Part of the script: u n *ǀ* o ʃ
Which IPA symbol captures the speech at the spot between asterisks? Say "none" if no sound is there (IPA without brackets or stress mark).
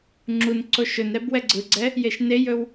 ǀ